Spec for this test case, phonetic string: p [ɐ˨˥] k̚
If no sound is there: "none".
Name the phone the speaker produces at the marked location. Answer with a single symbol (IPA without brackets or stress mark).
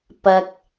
ɐ˨